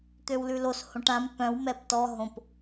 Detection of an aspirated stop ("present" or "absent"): absent